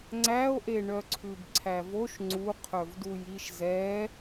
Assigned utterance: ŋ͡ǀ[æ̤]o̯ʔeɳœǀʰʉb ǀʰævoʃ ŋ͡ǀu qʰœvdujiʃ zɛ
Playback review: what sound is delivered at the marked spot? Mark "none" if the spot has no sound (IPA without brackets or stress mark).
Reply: æ